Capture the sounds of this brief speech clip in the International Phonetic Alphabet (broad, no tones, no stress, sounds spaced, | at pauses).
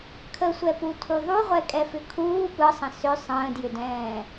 kʰ ə sʷ ɛ p u tʰ u ðˤ u ʁʷ ɛ kʼ ɛ f ʏ kʰ uː p ɯ sˤ ə̃ s ʏ sˤ ə̃ː d j ʏ d ɛ̃ː